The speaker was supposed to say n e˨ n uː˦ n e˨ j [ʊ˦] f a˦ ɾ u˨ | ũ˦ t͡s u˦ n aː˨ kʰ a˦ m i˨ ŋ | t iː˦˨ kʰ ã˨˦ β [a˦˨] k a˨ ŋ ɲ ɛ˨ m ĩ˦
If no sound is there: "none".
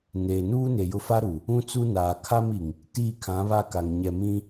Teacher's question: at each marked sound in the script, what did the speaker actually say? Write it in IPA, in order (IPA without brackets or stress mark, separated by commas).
ʊ˦, a˦˨